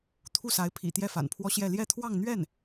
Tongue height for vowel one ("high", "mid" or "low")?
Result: high